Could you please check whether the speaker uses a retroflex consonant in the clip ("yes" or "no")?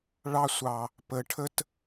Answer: yes